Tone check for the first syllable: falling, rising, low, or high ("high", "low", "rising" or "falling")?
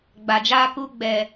low